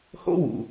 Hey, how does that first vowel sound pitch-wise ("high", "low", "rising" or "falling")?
high